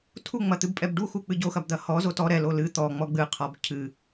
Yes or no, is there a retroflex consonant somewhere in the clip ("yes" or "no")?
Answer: yes